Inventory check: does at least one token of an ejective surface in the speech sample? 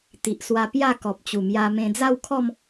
no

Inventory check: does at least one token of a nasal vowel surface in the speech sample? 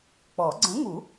yes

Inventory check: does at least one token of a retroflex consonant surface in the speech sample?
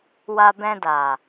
no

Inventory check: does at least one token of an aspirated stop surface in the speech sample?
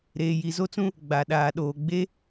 no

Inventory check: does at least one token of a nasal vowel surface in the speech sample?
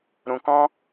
yes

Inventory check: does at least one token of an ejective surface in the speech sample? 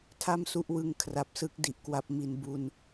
no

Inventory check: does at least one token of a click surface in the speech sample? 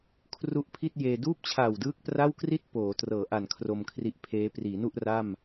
no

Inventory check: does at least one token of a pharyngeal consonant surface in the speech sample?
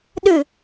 no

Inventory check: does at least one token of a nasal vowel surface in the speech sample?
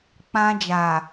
yes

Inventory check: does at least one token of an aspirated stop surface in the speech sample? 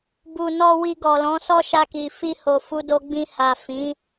no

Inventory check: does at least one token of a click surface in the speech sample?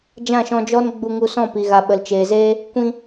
no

